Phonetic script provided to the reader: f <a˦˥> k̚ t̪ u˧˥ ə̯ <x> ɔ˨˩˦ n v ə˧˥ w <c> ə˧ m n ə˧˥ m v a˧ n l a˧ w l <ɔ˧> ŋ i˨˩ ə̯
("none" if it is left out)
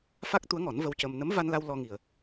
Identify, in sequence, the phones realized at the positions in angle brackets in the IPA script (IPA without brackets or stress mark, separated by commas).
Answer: a˦˥, ŋ, c, ɔ˧